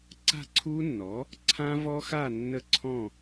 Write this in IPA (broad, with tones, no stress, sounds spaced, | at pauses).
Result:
ǀ a̤˥˨ ǀʰ u˦˥ nː ɔ˩˥ | ǀʰ ã˦˥ v ɔ˦˥ x a˥˨ nː ə˦˥ ǀʰ ɔ̃˥˨